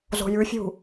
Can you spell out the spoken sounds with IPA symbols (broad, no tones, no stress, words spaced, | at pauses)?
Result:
zo̤jʉfʲṳ